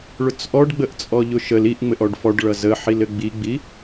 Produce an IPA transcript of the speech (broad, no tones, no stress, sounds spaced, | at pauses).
ɭ ʊ t͡s ʔ ɔ ɖ ɡ͡b ə ʔ t͡sʼ ɔ ʎ ʊ ʃ ə l i ʔ ŋ͡m ɘ ʔ ɔ ɖ f ɔ ɖ ɭ ʌ z ə ħ i l ɘ ɡ͡b i ɡ͡b i